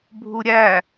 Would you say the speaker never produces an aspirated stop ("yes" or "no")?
yes